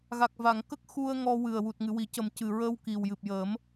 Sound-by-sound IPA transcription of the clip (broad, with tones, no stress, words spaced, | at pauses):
ɣa˨˩k̚va˨˩˨ŋ kə˦˥k̚xu˧ə̯ ŋɔ˧ wɨ˨˩ə̯wu˨˩t̚ ŋɨ˨˩˨wi˨˩˦ cə˨˩mcɨ˨˩ɹəː˧w ki˨˩wjɨ˨˩p̚jəː˨˩˦m